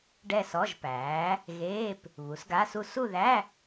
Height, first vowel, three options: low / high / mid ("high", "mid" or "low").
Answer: mid